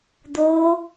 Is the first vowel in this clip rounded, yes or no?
yes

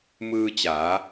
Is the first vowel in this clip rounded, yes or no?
no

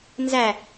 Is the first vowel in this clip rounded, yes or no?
no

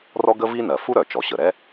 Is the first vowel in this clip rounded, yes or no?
yes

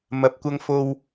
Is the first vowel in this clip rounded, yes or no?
no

